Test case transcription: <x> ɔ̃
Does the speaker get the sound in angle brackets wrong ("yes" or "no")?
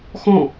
no